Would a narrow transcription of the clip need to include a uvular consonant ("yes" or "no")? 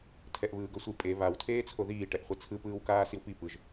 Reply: yes